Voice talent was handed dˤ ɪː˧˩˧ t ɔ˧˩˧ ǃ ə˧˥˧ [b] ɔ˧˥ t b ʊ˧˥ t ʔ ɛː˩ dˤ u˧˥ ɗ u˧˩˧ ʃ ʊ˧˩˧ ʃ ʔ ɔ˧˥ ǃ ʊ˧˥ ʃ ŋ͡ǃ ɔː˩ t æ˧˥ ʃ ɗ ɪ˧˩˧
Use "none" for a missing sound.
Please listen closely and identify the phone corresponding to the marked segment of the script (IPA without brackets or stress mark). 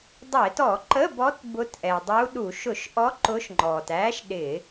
b